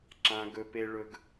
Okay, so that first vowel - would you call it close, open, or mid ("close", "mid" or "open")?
open